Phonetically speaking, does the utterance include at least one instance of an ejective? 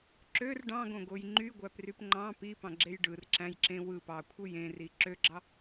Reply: no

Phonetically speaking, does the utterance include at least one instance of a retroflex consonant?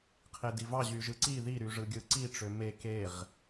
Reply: yes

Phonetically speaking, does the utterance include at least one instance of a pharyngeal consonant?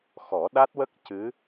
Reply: no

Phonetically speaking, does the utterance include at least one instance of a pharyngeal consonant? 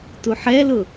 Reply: yes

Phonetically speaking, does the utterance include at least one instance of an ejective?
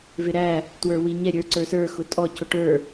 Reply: yes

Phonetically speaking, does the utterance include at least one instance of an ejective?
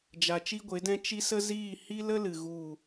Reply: no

